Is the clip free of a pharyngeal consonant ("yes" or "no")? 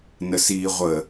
yes